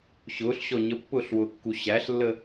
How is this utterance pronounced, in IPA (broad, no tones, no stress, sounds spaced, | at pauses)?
ɕ ʊː ɬ ɕ ɔ ɲ ə pː ʊː ɬ w ʊː kː u ɕ æ ɬ lː ə